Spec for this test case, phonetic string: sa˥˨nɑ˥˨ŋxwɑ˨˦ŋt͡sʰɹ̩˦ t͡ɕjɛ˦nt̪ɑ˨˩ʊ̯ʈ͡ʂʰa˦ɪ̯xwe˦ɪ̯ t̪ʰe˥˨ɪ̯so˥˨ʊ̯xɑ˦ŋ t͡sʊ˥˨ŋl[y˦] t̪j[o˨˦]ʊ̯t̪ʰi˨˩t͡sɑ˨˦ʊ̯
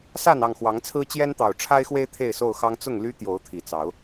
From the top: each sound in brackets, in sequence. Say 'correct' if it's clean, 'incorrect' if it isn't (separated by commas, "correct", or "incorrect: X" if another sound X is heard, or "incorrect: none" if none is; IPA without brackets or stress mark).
correct, correct